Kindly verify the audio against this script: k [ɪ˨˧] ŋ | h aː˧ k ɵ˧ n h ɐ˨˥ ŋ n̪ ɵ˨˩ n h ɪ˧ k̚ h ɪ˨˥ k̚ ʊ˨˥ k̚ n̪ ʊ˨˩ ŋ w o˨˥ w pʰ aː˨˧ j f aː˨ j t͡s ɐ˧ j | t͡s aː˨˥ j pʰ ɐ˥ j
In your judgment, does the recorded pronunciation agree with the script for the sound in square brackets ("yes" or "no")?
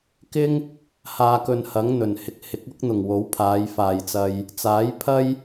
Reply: no